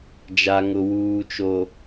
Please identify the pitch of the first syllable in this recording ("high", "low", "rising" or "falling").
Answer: low